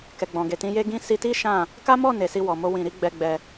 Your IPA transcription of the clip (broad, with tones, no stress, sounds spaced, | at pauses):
k ɛ˨ ɡ͡b ɔ̃˨ ɡ e˨ t ĩ˧ j e˦ ɡ ĩ˦ s i˧ t i˦ ʃ ã˦˨ | k a˦ m ɔ˦˨ n e˨ s i˧ w ɔ˨ m o˧ w ĩ˨ ɾ i˨˦ ɡ͡b ɛ˧ ɡ͡b ɛ˧